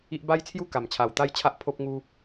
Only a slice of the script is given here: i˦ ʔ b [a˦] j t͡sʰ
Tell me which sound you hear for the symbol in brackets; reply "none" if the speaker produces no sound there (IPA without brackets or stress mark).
a˦